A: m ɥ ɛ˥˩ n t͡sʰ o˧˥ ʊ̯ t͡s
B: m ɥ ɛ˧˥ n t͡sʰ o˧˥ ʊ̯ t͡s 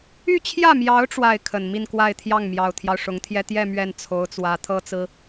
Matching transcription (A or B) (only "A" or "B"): A